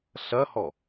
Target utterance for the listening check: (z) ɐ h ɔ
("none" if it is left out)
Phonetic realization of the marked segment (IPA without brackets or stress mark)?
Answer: ɬ